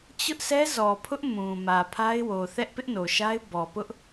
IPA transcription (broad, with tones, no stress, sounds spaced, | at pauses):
t͡ɕ ʊ˦ ʔ s ɛ˦ z ɔ˨ pʰ ʊ˦ ʔ m ũ˨ m ä˨ pʰ a˦ ɪ̯ w o˨ θ ɛ˦ ʔ p ɪ˦ ʔ n o˨ ʃ a˦ ɪ̯ b ɔ˨ p ʊ˦ ʔ